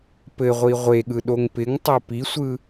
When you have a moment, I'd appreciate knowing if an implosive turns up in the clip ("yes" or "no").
yes